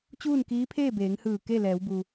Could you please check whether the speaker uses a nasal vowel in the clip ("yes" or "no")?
no